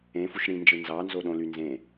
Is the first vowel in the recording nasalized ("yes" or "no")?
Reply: yes